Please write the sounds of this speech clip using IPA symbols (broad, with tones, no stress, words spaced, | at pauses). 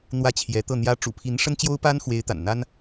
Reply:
n̪wä˥˩t͡ɕʰjɛ˧˥t̪ɤ˥˩ n̪jä˧˥ʈ͡ʂṵ˨˩pʰi˧˥n ʂə˥nt͡ɕjo˥ʊ̯pa˥nxwe˧˥ɪ̯ t̪a̰˨˩n n̪a˥n